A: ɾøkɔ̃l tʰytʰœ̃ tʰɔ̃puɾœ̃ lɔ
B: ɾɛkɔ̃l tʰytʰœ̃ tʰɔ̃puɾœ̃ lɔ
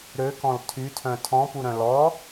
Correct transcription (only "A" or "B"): A